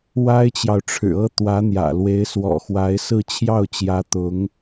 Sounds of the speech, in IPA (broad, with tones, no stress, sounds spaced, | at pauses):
w a˥ ɪ̯ t͡ɕ j ɑ˨ ʊ̯ ʈ͡ʂʰ ɻ̩˨˩ ɤ˥ t̪ w ä˧˥ n̪ j ä̰˨˩ l w e˧˥ ɪ̯ s w ɔ̰˨˩ x w a˧˥ ɪ̯ s ɹ̩˥˧ t͡ɕʰ j ɑ˥˩ ʊ̯ t͡ɕ j ä˧˥ t̪ ʊ˧˥ ŋ